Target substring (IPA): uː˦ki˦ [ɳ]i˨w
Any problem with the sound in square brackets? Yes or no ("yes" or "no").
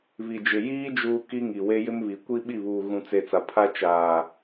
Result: yes